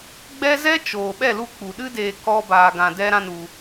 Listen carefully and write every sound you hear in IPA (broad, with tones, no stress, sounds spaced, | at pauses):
ɡ͡b ɛ˦ z ɛ˦ t͡ʃ oː˨ ɓ ɛ˦˨ l u˧ k͡p u˨ ɗ ɨ˦ d eː˧ k ɔ˦ b aː˧ ɡ ã˧ d ɛ˦ ɾ ã˦ n u˧